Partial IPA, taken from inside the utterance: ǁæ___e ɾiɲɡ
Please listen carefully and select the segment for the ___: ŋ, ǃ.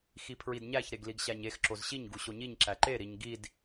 ǃ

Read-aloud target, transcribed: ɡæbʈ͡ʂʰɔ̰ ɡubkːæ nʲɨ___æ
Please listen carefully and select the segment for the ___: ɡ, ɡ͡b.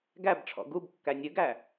ɡ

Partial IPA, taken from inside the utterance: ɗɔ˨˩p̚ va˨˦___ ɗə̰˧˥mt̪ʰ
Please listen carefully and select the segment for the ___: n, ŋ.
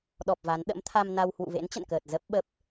n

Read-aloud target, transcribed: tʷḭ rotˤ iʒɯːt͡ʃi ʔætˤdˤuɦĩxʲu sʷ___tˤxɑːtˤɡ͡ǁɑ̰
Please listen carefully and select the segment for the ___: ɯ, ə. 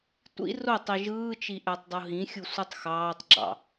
ɯ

